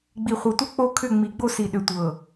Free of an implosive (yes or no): no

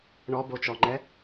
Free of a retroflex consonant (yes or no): no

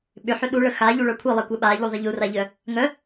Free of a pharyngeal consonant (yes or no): no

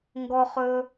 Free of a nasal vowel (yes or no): yes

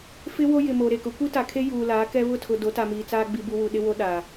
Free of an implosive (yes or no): no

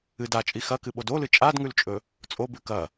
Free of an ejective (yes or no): no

